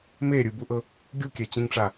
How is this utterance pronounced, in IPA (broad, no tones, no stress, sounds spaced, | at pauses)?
m e ɾʲ ɯ b u ʔ ɤ | ɡʲ u kʲ ɛ t͡ɕ ĩ ŋ ʈ͡ʂ a